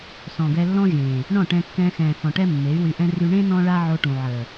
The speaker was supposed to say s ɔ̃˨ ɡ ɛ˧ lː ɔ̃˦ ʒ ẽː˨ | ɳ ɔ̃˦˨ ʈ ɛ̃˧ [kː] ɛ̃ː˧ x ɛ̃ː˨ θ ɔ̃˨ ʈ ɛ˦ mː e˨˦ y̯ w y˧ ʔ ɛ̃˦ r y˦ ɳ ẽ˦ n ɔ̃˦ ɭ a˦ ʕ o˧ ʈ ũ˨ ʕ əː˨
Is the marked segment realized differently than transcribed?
no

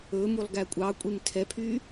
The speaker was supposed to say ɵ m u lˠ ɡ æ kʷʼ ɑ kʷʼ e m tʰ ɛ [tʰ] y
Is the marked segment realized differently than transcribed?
yes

